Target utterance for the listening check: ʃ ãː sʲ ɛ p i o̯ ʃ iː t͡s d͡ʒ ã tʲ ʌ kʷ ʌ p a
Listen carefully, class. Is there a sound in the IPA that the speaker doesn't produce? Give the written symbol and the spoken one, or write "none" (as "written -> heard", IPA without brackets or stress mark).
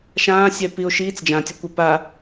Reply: none